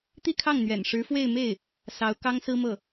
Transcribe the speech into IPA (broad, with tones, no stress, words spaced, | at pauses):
t̪i˥˧kʰɑ˥˩ŋn̪ɥɛ̰˨˩n ʂɻ̩˧˥fwe˥˧ɪ̯ me˥˩ɪ̯ | sɑ˧˥ʊ̯kɑ˥ŋsɹ̩˥mɤ˥˩